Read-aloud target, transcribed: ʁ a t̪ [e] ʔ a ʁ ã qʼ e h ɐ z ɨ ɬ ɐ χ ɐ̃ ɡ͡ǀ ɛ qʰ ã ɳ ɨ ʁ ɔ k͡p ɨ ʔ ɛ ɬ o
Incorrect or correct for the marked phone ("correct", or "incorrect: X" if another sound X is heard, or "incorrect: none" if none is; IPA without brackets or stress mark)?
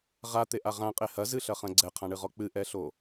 correct